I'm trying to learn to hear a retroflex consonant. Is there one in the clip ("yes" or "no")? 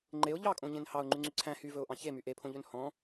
no